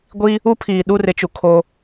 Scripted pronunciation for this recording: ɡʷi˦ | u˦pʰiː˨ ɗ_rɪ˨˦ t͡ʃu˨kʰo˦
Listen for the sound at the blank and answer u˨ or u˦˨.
u˦˨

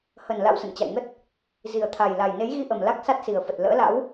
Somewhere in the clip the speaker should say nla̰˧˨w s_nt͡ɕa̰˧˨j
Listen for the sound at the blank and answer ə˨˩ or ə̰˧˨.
ə̰˧˨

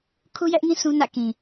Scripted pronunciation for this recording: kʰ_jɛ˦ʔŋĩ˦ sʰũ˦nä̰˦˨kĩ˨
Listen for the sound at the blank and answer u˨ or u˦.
u˦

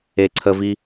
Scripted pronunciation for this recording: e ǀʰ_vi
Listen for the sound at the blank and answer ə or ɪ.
ə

